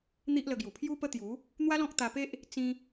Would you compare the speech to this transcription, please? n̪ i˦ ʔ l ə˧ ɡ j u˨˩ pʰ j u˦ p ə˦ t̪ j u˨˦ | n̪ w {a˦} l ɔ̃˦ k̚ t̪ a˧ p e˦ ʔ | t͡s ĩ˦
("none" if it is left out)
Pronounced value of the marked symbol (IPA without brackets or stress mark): a˦